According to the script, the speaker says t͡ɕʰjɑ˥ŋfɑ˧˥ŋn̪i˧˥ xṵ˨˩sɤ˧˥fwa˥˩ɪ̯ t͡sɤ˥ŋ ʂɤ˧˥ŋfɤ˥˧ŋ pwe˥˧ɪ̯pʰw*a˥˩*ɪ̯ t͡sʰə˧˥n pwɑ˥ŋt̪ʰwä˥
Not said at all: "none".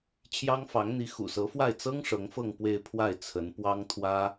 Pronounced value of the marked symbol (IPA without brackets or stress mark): a˥˩